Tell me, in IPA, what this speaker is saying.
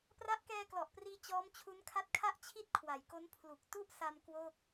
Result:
p r a˦˥ ʔ k ɛː˧ k l ɔ˨˩ ʔ p r iː˧ t͡ɕ ɔː˦˥ m t͡ɕʰ u˦˥ n kʰ a˦˥ t̚ kʰ a˥˩ ʔ t͡ɕʰ i˥˩ t̚ kʰ w a˩˦ j k o˦˥ n pʰ l u˨˩ k̚ t u˥˩ ʔ s a˧ m k w o˥˩ k̚

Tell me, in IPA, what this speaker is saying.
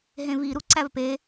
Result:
ɦ ẽ v i ɾ u ǀ æ v p e

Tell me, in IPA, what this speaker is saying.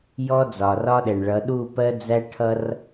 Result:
j ɔ˦ d͡z ɒ˨ r ɒ˦ ɗ ɛ˨ ɳ ɭ ʌ˨˦ ɗ u˦˨ p ɜ˦ d͡z æ˦ ʈʰ ʌ˦ r

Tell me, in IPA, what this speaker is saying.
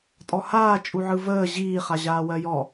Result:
tʼ ɔ h aː t͡ʃʼ u ʕ ɯ v əː ʑ iː χ a ʑ aː w ɜ j ɔ

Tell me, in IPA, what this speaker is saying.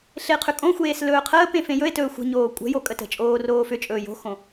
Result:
ɬ e qʰ ʏ kʼ õ xʷ eː s l ɵː qʰ əː p ẽ f ẽ j ɵ e̯ t ɵː xʷ ə̤ ɲ oː kʷʼ ə̤ j o kʼ ə t ə̤ t͡ʃʼ oː r oː f ʏ t͡ʃʼ ɵː j o̤ x õ

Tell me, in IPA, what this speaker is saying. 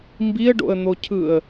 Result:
m b i ə̯ ɖ o̰ ə̯ n̪ o cʰ ɯ ə̯

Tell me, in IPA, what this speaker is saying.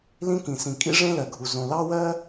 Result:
l ĩ˥ k ĩ˩ s ĩ˩ kʼ ḭ˥ ʐ ẽ˥ l ɜ˩ ɡʱ u˩ z õ˩ l ɑ˥ w ɜ˥

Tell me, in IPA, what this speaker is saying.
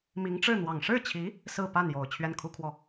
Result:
m i˧˥ ŋ ʈ͡ʂ ɻ̩˥˩ n̪ w ɑ˨˩ ŋ ʂ ɻ̩˥˩ t͡ɕʰ i˧˥ | s ɹ̩˥˧ p a˥˩ n j o˨˩ ʊ̯ t͡ɕʰ ɥ ɛ˥˩ n kʰ u˥ kʰ w ɔ˥˩

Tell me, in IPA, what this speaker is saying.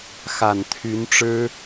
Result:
x a˨˩ n t̪ʰ y˧˥ n ʈ͡ʂ ɻ̩˥

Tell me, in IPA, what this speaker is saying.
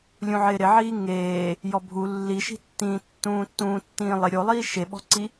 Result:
lʲ ũ ʕ ɪː ɾ ɪ ʕ iː ŋ eː | j ɔ bʱ u lː i ʃ i̤ tː ĩː tː ũː tː ũː tː ĩː lˠ ɪ ɾʲ o lˠ iː ʃ e ɓ ɔ̤ ǀ i

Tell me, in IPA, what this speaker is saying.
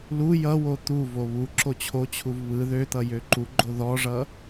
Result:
l u j ʌ w o t̪ u v o β u ǁ o t͡ɕʰ o t͡ɕʰ u v β ɯ ð ø t̪ ʌ j ø ǃ u ɡ͡ǃ o ð ɔ ʐ ʌ

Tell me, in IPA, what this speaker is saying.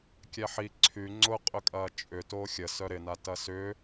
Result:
kʲ ɛ ħ i ǀʰ y ŋ͡ǀ ʊ qʼ ʏ kʼ ɐː t͡ʃʼ ʏ t oː xʲ ə s œ ɾ ɪ n a t ɐ s ʏː

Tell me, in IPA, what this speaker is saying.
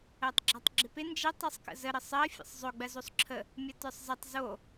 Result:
ɜ tˤ ɡ͡ǁ a tˤ ɡ͡ǁ ɪ p ɪ n d͡ʒ ɪ tˤ i sˤ k ə̰ z ə ɾ ə sˤ ɜ fʲ ə̰ sˤ zˤ ɵ ɡ͡b ɜ z o sˤ ǁʰ ə | mʲ ə t ə˞ sˤ z ə tˤ z o

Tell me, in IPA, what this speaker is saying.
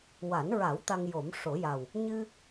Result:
w a˨˩˦ n ɹ a˨˩˦ w t̪ a˧ ŋ j o˨˩˦ m ʂ o˨˩˦ j a˨˩ w | ɲ ɨ˧

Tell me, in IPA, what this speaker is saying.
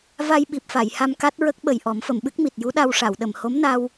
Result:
v a˧ j ɓ i˨˩ p̚ f a˨˩˨ j h a˧ m k a˦˥ t̚ ɹ ə˦˥ k̚ ɓ ə˨˩ j ʔ ɔ˨˩˦ m f ə˨˩˨ m ɓ ɨ˦˥ k̚ m i˨˩ t̚ j u˧˥ ɗ a˧ w ʂ a˨˩˨ w ɗ ə˨˩˨ m h o˧˥ m n a˧ w

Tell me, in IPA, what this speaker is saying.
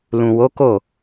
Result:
l ũ˨ w o˨˦ k o˦˨

